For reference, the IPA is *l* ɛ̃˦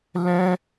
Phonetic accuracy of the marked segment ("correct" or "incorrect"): correct